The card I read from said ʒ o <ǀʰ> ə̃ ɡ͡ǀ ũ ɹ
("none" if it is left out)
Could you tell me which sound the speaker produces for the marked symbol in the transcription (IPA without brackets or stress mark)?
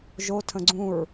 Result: tʰ